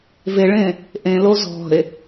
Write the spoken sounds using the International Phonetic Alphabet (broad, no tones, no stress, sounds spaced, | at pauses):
v e ɭ ẽ | ʔ ẽ l o z ɔ̤ e̯